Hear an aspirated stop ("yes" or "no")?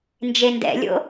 no